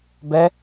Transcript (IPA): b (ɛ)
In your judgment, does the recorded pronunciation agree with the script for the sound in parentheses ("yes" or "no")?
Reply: yes